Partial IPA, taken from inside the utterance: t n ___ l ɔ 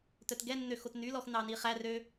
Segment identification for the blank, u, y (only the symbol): y